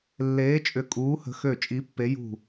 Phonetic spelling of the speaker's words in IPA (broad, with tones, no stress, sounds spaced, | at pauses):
lː eː˧˥ t͡ʃʼ ʏ˦˨ kʼ uː˧˥ h ə̤˧˥ x ø˦˨ t͡ʃʼ i˧˥ pː e˧˥ j ṳ˦˨